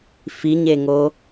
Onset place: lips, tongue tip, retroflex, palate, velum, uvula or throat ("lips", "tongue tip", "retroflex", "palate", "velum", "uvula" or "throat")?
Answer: lips